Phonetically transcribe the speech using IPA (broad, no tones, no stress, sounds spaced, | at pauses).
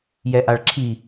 j ɛ ʔ a ɭ ǁʰ i